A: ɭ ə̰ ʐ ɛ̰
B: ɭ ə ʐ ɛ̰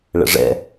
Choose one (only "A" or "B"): A